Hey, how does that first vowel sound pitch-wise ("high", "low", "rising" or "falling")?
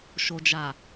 low